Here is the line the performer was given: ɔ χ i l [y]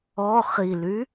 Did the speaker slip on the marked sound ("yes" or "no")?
no